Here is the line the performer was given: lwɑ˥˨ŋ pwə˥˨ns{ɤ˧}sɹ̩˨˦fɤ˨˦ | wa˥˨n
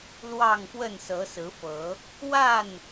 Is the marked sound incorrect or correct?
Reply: incorrect